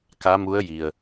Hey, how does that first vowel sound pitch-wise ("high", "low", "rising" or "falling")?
rising